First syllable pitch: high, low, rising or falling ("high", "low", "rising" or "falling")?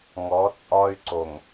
rising